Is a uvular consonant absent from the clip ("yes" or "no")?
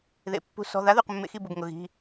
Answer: no